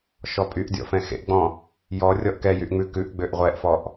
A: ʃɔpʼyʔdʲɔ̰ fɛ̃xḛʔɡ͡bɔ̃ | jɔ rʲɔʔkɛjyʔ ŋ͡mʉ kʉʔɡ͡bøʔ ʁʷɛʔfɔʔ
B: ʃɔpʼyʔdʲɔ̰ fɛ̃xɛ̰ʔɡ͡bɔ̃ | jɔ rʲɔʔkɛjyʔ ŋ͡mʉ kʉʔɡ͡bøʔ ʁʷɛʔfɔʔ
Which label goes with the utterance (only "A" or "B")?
A